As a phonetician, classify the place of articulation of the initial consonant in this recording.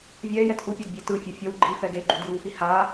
labial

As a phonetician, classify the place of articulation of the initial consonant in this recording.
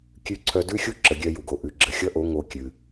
velar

